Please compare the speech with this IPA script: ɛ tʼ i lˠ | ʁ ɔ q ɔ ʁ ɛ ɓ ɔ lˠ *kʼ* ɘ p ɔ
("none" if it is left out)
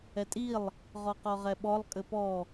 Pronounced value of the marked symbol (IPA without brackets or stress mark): kʼ